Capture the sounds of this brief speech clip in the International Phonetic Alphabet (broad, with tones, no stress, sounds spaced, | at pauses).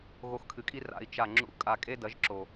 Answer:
ɣ o˧ x kʰ ɨ˨ kʼ i˦ r a̰˧ i̯ t͡ʃ a˦˨ ŋ͡ǁ ṵ˦ kʼ a˧ kʼ e˦ d ɐ˨˦ ʒ ǁ o˨